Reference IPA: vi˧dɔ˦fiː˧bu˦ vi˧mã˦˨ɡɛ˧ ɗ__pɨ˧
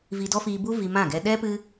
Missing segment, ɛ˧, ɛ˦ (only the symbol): ɛ˦